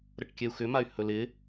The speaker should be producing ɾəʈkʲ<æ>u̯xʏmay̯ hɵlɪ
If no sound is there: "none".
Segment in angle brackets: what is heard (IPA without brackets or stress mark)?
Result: ɛ